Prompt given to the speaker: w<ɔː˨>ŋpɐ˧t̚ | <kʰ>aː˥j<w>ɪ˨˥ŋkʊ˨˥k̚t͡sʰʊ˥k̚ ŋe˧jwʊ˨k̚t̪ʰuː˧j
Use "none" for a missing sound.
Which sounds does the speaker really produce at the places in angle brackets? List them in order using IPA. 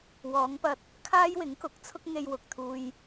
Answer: ɔː˨˧, kʰ, w

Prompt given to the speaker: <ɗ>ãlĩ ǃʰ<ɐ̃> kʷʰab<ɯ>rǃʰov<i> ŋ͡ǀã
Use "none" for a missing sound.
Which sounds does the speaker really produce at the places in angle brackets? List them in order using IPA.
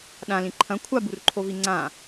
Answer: ɗ, ɐ̃, u, i

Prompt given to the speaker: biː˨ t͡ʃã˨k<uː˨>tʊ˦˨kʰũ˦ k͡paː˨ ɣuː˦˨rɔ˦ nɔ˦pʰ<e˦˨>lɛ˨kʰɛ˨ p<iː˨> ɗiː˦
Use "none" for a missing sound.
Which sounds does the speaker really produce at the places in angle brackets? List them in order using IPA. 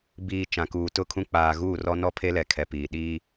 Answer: uː˨, e˦, iː˨

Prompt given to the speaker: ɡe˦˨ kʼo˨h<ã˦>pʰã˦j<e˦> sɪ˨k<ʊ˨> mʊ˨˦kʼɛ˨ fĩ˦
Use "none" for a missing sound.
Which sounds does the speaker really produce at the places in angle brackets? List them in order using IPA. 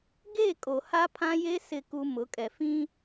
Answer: a˦, e˦, u˨

